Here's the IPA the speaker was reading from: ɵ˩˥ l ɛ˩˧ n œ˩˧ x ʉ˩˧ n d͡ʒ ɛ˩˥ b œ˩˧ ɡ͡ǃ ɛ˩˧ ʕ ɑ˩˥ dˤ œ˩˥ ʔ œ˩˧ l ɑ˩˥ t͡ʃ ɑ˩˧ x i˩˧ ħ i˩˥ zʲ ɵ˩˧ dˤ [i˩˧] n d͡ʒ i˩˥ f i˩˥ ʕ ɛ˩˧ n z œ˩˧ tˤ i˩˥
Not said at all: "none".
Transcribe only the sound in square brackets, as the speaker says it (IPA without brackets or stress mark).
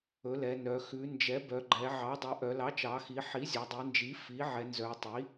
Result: i˩˧